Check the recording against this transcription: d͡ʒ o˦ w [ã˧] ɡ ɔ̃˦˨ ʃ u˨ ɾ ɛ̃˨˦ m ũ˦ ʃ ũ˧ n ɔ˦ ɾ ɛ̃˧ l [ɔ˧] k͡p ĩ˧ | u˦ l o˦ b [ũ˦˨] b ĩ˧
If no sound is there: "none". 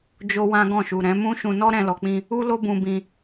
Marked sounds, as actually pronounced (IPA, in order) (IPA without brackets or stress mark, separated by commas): ã˦, ɔ˨, ũ˧